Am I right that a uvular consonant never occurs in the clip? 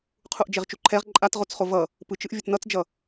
no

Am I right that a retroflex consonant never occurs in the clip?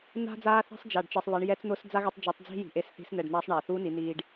no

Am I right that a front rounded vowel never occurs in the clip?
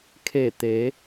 yes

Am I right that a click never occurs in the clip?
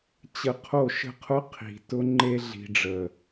no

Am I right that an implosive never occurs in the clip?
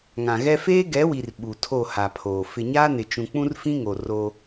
no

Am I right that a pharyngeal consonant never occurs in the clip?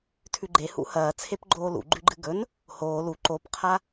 yes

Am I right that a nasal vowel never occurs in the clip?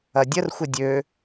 yes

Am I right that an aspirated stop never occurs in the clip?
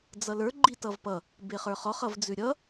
yes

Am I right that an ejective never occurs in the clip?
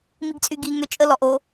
no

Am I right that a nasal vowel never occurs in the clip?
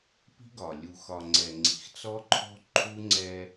yes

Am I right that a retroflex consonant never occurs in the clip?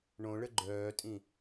no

